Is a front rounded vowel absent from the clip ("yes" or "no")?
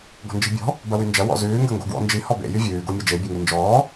no